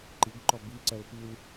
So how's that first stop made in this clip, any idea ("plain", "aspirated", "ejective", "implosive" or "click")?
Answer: click